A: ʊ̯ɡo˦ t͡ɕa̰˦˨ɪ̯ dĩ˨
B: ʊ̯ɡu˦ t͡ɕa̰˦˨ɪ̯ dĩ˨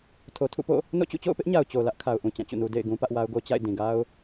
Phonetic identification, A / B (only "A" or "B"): A